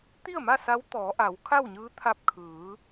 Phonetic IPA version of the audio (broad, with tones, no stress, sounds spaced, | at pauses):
t̪ i˥˨ ə̯ m a˥˨ s a˧˥ w t̪ ɔː˩˧ ʔ a˩˧ w kʰ a˥˨ w ɲ ɯː˧˥ t̪ʰ a˧ p̚ kʰ ɯː˩˧